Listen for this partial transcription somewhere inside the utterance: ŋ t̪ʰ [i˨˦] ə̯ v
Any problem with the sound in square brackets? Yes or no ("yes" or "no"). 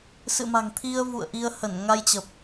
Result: yes